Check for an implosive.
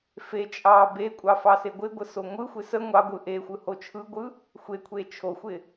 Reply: absent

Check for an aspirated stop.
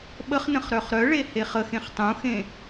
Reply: absent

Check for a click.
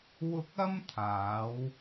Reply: absent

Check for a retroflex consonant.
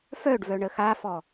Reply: present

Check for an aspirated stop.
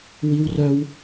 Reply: absent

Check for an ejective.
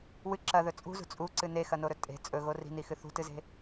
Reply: present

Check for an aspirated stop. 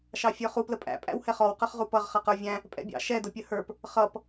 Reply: absent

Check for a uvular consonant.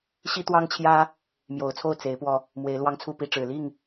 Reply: absent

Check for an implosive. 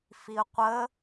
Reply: absent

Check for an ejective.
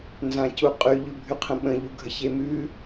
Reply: present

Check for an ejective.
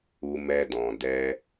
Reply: absent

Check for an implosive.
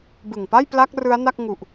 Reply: absent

